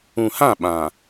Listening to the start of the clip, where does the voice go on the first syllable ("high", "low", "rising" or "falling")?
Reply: low